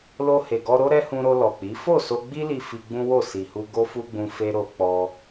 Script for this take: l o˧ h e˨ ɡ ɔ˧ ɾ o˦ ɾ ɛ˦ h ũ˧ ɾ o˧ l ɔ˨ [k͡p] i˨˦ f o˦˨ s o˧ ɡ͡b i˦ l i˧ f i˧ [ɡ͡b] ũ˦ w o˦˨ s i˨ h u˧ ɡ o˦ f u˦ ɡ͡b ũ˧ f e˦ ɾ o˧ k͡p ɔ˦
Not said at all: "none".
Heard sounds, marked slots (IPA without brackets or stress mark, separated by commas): k͡p, ɡ͡b